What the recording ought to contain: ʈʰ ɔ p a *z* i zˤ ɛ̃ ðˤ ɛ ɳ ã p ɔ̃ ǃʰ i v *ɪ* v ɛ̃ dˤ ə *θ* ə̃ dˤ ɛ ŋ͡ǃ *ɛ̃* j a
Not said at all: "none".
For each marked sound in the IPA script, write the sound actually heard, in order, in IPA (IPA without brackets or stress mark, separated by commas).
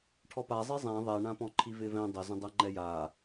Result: zˤ, ɪ, z, ɛ